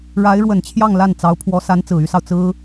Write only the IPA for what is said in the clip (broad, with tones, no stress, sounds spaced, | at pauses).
ɻ a˧˥ ɪ̯ ɻ w ə˨˩ n t͡ɕʰ j ɑ˥˧ ŋ l a˥˩ n t͡s ɑ˧˥ ʊ̯ pʰ w ɔ˧˥ s a˧˥ n t͡s ɹ̩˨˩ y˥ s ɑ˨ ʊ̯ t͡s ɹ̩˥